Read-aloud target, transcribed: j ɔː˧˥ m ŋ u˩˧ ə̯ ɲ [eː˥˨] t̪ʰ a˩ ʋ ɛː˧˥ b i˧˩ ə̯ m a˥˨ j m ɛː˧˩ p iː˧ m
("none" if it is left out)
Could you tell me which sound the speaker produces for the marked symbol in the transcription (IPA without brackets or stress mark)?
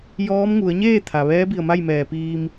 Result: eː˥˨